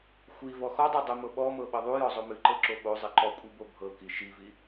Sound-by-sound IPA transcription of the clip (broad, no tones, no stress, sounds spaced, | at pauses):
xʷ i v ɔ x ɔ dˤ o dˤ ɨ m ɤ ɓ ɔ m ɤ ɓ ɤ ðˤ u j ɔ zˤ o m ɨ ǃ ɤ ǁ o ɓ o zˤ i ǃ ɔ kʷʼ i b o bʱ ɤ k i ʃ i v i